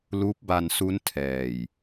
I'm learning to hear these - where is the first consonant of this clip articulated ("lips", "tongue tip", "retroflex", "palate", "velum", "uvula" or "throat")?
tongue tip